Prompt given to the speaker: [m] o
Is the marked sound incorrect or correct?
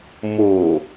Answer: correct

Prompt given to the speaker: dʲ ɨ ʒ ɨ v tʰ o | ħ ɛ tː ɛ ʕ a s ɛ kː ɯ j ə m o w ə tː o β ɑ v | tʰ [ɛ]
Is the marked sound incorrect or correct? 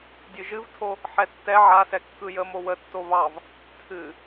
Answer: incorrect: ɨ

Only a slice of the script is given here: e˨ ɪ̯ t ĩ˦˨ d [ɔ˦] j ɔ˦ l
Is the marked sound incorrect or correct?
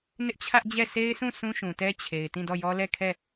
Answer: incorrect: ɔ˦˨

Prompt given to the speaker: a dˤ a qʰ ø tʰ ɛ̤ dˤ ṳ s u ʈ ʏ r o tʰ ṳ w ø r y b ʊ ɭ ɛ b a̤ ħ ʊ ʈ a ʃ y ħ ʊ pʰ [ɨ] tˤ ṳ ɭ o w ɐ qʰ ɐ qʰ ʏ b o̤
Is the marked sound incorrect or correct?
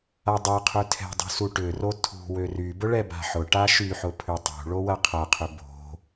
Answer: incorrect: ʏ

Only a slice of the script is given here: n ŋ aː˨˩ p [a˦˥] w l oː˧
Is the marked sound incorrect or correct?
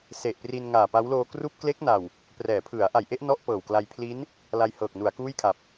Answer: correct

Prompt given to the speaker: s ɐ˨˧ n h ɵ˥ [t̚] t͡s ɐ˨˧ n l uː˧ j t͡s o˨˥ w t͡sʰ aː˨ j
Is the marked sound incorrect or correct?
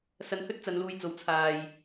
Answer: correct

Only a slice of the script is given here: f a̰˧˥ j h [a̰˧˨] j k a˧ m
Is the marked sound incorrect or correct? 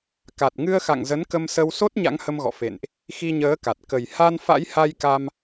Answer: incorrect: a˧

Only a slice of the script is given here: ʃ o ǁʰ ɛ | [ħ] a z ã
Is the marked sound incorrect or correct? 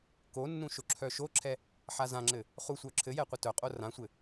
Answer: correct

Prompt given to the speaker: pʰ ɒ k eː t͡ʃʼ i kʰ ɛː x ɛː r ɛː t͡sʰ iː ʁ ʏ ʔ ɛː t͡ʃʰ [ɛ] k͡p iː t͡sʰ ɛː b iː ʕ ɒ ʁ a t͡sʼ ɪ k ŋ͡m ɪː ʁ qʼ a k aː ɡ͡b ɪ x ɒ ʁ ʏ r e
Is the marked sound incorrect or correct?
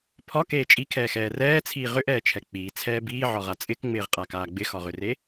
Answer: correct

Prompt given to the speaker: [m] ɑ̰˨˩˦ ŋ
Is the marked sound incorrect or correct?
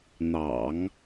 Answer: incorrect: n̪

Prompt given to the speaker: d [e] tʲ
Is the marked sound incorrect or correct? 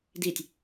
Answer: incorrect: i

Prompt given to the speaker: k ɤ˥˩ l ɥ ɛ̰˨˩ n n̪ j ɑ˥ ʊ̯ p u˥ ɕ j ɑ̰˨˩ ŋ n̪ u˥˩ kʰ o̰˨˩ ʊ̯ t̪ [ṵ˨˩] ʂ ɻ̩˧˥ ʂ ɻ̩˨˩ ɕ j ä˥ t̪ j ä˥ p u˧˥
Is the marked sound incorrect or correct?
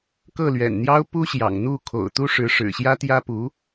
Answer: incorrect: u˥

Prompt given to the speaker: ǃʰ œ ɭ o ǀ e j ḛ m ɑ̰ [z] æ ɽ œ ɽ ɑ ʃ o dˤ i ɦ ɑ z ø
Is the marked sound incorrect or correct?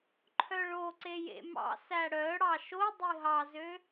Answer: incorrect: s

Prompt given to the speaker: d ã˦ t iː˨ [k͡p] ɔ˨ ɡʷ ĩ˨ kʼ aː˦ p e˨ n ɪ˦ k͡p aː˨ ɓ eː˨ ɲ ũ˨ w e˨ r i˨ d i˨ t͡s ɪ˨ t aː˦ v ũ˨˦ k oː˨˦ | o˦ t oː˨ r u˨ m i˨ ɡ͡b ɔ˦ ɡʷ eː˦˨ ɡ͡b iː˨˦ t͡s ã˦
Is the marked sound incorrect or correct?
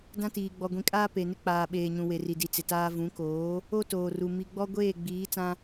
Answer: incorrect: ɡ͡b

